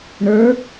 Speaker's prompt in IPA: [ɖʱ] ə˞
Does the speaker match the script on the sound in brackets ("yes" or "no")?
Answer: no